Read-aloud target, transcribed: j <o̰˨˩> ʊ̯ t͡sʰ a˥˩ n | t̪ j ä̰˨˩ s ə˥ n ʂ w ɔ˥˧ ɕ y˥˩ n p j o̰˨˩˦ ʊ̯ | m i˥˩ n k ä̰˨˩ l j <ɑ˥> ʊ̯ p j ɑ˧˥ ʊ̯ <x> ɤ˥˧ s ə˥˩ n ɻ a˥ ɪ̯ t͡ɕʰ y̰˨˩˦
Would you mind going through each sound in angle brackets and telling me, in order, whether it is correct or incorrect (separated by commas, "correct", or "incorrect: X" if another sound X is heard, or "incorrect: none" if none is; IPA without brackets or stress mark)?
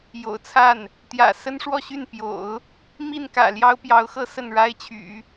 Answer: correct, correct, correct